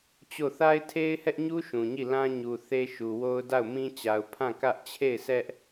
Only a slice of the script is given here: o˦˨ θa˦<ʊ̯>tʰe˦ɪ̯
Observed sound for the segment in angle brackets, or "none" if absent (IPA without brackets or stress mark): ɪ̯